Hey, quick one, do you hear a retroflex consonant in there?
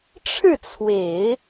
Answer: yes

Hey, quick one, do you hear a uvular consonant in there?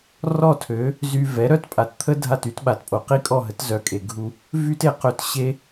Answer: yes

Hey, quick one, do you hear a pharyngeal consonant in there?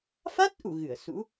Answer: no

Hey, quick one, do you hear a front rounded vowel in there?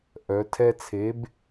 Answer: yes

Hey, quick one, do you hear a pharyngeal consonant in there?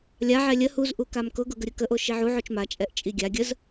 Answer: yes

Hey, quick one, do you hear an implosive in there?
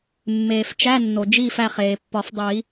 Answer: no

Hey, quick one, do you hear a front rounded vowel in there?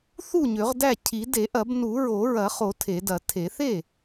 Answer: yes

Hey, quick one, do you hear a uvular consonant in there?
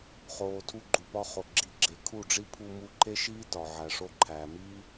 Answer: yes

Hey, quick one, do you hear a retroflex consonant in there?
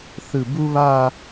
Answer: no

